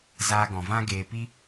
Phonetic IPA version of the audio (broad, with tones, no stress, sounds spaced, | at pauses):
z aː˧ ɡ ɔ̃˨ v ã˦ ɡ eː˨ p i˦